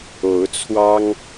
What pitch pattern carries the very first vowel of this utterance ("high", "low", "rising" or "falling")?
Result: rising